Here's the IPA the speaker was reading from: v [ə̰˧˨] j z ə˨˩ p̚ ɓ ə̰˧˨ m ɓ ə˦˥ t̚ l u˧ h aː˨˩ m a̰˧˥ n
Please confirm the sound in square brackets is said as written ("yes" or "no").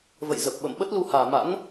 yes